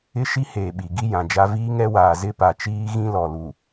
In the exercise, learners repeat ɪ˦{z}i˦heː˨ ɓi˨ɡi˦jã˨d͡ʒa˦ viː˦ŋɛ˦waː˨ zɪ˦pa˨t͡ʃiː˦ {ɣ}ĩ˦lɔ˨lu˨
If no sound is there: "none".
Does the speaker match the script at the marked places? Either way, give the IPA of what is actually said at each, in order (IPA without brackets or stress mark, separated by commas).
ʃ, ɣ